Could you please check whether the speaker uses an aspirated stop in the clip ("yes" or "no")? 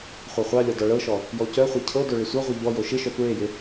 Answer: yes